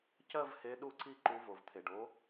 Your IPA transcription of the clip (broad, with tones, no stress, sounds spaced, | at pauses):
c ɜ˥˧ v h e˨˥ ɗ u˥˧ ǀ i˥˧ ǃ u˨˥ v o˩ v t̪ʰ e˩ ɖ o˨˥